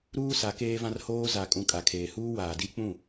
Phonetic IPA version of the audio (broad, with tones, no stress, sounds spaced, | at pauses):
ɾ uː˦ s a˨˦ k eː˦ v ã˦ r h oː˦ z a˨ kʼ ũ˨ kʼ a˨ kʰ eː˨ h uː˦ w aː˨ d i˦ k͡p ũ˦˨